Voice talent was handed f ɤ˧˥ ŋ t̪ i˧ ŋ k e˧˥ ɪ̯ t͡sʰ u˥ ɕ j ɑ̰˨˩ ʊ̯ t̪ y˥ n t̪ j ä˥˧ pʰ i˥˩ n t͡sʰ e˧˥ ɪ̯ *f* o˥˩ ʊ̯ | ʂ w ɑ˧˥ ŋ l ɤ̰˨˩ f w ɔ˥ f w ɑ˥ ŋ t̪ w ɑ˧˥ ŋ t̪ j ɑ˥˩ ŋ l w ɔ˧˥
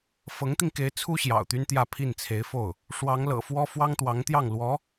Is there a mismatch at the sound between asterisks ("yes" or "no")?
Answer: no